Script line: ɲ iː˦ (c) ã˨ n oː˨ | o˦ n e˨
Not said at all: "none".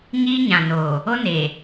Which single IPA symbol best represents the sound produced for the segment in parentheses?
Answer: ɲ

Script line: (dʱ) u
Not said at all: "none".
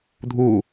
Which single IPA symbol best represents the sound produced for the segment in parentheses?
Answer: dʱ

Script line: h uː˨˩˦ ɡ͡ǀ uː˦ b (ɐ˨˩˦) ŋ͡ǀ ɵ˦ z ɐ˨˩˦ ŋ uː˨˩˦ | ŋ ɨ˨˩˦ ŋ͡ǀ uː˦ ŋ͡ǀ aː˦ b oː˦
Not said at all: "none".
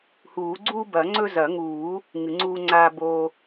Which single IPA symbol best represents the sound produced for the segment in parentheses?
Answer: ɐ˨˩˦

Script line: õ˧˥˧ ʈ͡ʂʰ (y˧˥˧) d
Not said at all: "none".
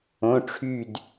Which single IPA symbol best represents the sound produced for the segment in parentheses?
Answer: y˥˧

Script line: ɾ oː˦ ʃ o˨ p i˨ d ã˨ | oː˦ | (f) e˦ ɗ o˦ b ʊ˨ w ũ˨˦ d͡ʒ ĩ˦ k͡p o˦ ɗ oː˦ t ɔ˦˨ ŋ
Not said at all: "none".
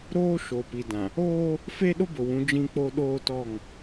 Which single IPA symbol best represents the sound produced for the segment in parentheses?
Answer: f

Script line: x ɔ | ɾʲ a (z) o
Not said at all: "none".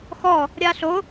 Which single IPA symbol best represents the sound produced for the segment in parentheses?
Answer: ɬ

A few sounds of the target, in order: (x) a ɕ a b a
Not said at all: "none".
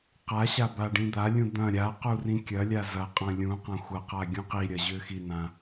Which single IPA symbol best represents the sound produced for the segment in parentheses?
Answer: q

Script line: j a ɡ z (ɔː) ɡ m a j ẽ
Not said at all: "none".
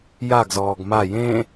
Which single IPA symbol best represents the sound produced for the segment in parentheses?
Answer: ɔː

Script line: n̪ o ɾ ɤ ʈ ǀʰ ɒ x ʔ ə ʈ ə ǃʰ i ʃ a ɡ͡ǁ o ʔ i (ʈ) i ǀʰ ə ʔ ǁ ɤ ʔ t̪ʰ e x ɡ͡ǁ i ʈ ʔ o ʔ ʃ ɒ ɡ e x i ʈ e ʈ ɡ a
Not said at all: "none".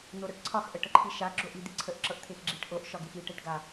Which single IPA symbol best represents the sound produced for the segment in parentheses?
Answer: d̪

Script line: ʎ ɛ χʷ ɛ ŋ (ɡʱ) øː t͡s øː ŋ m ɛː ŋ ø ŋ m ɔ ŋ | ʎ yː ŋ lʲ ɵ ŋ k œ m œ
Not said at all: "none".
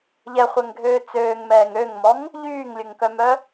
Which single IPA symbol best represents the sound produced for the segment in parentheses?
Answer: ɡʱ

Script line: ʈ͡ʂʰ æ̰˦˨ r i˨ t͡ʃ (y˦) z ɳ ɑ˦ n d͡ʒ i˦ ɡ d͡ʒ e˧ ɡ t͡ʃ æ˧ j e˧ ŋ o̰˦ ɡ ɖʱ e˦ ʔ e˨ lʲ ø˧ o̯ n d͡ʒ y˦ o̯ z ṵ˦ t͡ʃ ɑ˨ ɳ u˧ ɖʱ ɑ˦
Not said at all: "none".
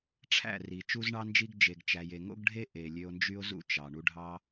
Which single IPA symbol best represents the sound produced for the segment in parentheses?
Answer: u˦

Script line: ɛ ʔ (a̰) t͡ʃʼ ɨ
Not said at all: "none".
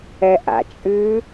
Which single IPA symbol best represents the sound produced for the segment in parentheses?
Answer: a̰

